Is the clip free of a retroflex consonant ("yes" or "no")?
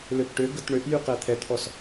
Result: no